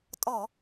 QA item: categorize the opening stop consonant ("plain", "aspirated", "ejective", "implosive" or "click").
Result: ejective